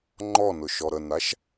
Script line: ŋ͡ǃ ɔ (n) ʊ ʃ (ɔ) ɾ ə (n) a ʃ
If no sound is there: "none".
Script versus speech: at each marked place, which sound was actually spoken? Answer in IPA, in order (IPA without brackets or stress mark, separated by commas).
n, ɔ, n